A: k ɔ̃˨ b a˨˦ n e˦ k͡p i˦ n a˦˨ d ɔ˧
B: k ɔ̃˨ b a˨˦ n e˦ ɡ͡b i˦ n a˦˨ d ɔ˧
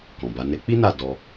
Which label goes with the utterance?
A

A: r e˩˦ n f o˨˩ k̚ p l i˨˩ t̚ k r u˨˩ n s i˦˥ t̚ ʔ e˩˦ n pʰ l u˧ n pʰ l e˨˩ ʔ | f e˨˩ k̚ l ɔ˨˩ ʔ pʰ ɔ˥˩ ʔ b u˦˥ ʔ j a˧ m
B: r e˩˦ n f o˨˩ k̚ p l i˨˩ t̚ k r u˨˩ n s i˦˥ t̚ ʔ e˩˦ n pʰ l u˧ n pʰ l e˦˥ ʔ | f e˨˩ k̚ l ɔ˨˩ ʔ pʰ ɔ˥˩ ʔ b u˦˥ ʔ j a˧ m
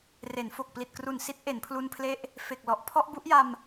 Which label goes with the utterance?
B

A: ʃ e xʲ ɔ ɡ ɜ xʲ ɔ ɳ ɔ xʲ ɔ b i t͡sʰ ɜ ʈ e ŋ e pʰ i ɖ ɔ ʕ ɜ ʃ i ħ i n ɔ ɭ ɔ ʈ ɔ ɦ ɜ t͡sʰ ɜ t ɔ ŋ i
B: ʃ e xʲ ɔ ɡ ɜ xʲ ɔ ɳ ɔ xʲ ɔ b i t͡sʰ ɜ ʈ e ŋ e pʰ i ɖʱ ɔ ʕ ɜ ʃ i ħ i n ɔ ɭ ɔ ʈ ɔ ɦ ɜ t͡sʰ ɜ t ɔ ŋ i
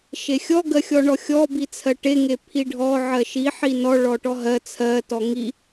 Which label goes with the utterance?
B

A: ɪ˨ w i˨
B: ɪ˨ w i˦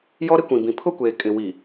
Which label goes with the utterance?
A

